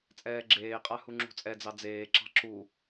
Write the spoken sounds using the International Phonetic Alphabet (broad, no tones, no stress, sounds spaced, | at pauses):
t͡sʼ ɛː ɡ͡ǁ eː qʼ a h u ŋ͡ǁ ṳ t͡sʼ ɛ d͡z ɑ d͡z eː ǁ ɑ̤ ǁ u